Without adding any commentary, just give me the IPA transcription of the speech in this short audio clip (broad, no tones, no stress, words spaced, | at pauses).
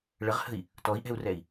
ɭəʁhə̤i̯ | tɔi̯ʔɛ̤u̯rɛi̯